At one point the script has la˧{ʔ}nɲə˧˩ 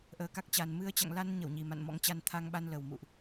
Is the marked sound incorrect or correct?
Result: incorrect